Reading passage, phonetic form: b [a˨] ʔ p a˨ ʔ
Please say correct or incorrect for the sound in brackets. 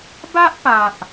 incorrect